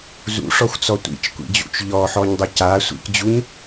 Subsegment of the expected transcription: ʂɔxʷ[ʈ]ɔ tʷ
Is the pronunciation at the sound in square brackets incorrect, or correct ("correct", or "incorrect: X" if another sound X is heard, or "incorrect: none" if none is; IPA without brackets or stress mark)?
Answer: incorrect: t͡s